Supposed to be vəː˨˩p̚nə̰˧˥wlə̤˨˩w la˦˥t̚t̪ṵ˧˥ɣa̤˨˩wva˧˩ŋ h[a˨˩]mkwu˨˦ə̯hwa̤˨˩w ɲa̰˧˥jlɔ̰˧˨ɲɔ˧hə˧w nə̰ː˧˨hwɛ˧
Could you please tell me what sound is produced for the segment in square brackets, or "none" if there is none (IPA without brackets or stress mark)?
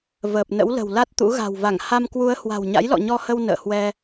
a˧